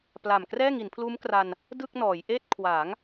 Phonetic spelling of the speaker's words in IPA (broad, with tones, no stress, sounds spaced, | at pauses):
p l a˨˩ m k r ɛː˥˩ ŋ i˩˦ n pʰ l uː˦˥ m k r a˧ n | d ɯ˥˩ k̚ n ɔː˩˦ j ʔ eː˥˩ t̚ kʰ w aː˩˦ ŋ